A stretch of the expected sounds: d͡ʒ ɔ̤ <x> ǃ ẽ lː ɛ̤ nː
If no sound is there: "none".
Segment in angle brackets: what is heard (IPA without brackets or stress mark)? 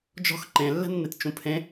x